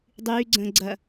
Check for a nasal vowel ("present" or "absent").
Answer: present